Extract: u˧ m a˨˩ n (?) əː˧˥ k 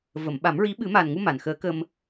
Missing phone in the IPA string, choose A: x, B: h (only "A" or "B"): A